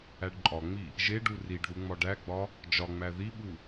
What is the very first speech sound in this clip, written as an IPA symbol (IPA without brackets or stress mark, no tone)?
æ